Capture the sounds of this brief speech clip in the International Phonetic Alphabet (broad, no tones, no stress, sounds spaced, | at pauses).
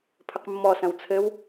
pʰ ɘ q mː ɔ s ɐ̃ w t͡sʰ ɘ w